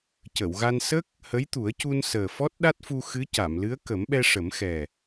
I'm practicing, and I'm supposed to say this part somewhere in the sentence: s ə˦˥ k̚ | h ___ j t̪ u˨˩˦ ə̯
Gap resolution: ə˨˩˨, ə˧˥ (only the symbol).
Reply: ə˧˥